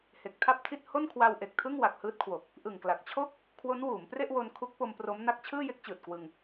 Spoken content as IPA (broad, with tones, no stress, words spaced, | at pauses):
he˨˩k̚tʰa˥˩p̚tʰi˥˩t̚ ho˥˩nkʰwa˧wʔe˨˩k̚tʰɯ˥˩ŋ wa˨˩k̚hɯː˦˥t̚kʰwo˨˩k̚ | ʔɯ˨˩ŋkla˨˩k̚t͡ɕʰo˥˩k̚ | kʰwo˦˥nwuː˩˦mpre˥˩ʔwo˧n kʰu˦˥k̚po˧mpro˦˥mna˦˥k̚ t͡ɕʰɯː˥˩je˦˥k̚t͡ɕɯː˨˩t̚kwɯ˧ŋ